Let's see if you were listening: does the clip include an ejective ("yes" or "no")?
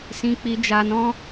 no